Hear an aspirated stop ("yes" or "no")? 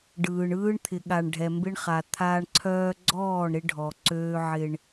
yes